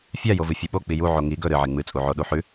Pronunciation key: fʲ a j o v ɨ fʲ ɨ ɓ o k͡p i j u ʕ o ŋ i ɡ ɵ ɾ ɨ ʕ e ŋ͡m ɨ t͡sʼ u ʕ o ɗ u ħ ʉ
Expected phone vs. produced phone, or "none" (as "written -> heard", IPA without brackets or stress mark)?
none